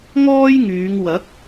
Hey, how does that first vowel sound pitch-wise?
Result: high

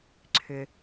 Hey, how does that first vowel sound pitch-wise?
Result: low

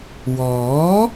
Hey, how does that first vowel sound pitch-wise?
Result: rising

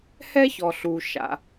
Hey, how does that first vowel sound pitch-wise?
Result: high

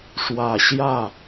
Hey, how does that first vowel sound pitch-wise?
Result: low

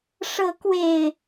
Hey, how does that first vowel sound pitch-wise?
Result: rising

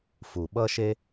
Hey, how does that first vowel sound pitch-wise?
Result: low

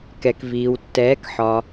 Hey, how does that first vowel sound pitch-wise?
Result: low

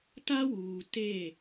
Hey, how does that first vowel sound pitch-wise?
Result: high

